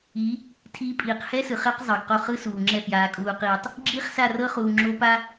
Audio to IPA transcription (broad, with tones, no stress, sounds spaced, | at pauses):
i˨˦ | tʰ iː˦ pʼ iː˨ q h ɛ˦ s ɯ˨ χ ɛ˦ q zˤ ɤ˨ ɡ q o˦˨ χ ɯ˦ s uː˨ ŋ͡ǁ ɛ˦˨ f j aː˨ kʼ uː˨ q iː˨ tˤ | ɡ͡ǁ iː˦ χ s a˦˨ r ɤ˦ χ uː˨ ŋ͡ǁ o˦ p a˦